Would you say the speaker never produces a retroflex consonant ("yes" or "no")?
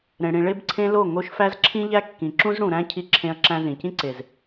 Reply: no